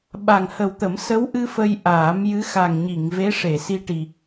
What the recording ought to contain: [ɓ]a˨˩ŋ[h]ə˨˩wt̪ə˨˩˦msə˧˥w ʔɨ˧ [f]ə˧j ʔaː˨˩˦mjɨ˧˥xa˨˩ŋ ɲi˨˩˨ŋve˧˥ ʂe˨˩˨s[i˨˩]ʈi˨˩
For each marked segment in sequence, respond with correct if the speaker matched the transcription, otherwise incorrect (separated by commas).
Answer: correct, correct, correct, incorrect